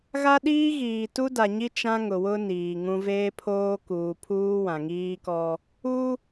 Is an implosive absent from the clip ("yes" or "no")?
no